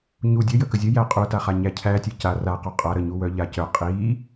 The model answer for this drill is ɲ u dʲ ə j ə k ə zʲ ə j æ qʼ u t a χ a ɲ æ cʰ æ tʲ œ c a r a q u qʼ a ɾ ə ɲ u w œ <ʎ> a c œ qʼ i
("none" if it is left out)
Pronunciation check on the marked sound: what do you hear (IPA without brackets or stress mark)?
ʎ